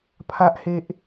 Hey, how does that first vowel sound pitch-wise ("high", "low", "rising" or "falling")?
high